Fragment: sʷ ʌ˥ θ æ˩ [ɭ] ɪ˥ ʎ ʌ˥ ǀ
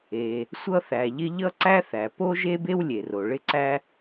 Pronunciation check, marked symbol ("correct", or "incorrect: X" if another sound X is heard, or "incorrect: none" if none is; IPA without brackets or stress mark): incorrect: ʎ